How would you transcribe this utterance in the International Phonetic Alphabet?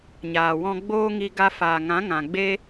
ɲaː˨wɔ̃˧ɡ͡boː˦ŋi˧ ɡa˧faː˨ŋã˨˦ ŋã˨ɡ͡be˦

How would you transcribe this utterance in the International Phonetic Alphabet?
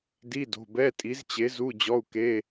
di˧˥˧do̤˩˧˩bɛ˧˥˧ tʼi˨˥zt͡ɕe˨˥zu˧˥˧ d͡ʑɔ˧˥˧u̯ke˧˥˧

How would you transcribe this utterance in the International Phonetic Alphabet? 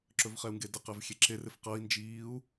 ǁɵvχɛu̯ŋɡedɪ qɛvxʲeǁer ɪfqɤi̯ nd͡ʒiːu̯

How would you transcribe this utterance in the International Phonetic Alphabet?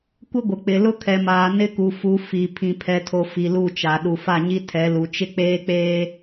kʷɪ˦ɡʷɪ˨k͡pɪ˨ lʊ˦kʰɛ˨maː˨ nɪ˦ku˨fu˨˦ fi˨ pʰĩ˨pʰɛ˨tʰo˨ fi˨lu˦˨t͡ʃa˨ ɗu˨fa˦˨ɲi˦ tʰɛ˨˦lu˨ t͡ʃɪ˦k͡peː˦k͡peː˦

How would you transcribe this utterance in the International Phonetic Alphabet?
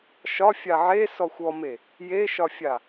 ʃɒfʲa ʕesɔxʷ ɔme | jeʃɒfʲa

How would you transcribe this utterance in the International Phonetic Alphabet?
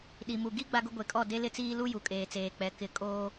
ɗi˨mu˨ ɡi˦ ɡ͡ba˦ɡʊ˦ ɡʷe˨kʼɔ˦˨ de˦lɪ˦t͡siː˦ lu˦ju˨kʼeː˨t͡seː˨ k͡pɛ˨ kɪ˨ kʼoː˦

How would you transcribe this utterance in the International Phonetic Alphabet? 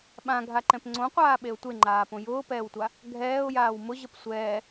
ɓãɡʱaǃɛ̃p ŋ͡ǀõqʷaːɓeʊ̯ tʷeŋ͡ǃaːpõ jʊːpɛːwtʷa | ɡʱɛːʊ̯jaːw mʊʑəp sʷɛː

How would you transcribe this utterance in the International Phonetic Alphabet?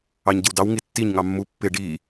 ɑɲɟɪwdɑw ŋitːiɲ ŋɑmːu pːɪ ɖi

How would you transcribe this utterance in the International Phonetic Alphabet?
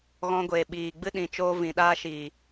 ɣɔ̃˧ɡʷe˨ ɓiː˨ɡ͡bɨ˦ ɗĩ˧t͡ʃoː˦ vĩ˨ɗaː˦ʃi˨

